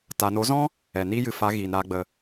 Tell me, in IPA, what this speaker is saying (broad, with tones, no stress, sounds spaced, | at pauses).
t a˨ n o˨˦ z ɔ̃˦ | ɛ˨ n iː˦ j ɨ˨ f a˨˦ ɣ iː˨ n ɾ aː˦ ɡ͡b ə˧